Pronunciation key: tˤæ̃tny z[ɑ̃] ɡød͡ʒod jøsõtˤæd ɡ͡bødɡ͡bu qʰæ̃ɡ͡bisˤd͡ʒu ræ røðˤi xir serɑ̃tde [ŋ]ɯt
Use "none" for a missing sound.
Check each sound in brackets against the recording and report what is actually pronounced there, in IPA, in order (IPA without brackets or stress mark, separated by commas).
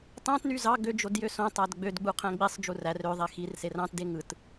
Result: ɑ, ŋ